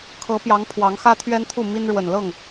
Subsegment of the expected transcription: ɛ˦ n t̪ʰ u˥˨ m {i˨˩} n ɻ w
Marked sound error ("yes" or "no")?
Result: yes